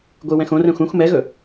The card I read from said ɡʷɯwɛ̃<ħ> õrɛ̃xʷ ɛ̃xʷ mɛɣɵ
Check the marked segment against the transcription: incorrect: x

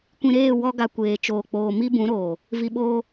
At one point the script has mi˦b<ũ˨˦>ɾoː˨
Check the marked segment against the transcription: correct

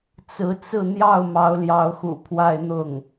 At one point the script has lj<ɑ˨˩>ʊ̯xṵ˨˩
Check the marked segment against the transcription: incorrect: ɑ˧˥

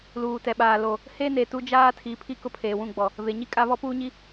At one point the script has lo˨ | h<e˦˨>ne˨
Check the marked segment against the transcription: incorrect: e˦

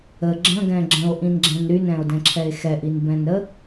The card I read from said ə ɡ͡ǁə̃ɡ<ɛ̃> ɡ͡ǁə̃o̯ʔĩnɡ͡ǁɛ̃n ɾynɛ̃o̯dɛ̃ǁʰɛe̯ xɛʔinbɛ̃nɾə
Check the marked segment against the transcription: correct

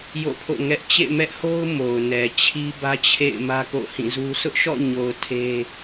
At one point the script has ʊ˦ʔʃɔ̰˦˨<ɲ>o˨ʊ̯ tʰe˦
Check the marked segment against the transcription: correct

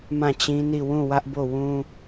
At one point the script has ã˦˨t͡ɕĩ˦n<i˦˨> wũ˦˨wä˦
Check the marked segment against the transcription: correct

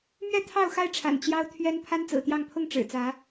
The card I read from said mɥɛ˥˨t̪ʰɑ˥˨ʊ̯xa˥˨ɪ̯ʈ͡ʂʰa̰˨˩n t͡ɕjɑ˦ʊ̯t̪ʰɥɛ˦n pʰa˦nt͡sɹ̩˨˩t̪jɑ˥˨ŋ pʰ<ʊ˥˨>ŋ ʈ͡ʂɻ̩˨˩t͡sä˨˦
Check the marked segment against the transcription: correct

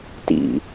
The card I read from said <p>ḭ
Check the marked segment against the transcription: incorrect: t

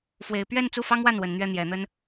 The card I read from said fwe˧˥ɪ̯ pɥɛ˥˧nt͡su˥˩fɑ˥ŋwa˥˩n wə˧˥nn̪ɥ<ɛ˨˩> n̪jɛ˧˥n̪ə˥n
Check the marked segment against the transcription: incorrect: ɛ˥˩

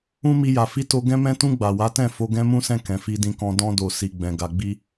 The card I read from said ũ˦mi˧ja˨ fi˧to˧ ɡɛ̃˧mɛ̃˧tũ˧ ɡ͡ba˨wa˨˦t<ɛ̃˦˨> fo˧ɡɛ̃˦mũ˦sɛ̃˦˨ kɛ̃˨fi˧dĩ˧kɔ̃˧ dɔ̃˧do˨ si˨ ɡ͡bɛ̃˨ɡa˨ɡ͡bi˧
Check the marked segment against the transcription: correct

